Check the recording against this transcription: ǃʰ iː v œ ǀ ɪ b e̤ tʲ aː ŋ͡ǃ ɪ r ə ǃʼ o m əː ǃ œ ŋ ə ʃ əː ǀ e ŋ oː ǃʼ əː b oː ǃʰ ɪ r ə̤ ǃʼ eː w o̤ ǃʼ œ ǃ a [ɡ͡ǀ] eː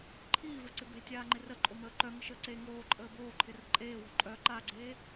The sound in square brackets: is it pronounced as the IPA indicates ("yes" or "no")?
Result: yes